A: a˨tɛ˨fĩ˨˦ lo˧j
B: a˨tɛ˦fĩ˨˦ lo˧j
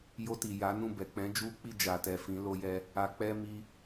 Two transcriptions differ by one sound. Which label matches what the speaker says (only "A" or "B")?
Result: A